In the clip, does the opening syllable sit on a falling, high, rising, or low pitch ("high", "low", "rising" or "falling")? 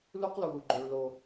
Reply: high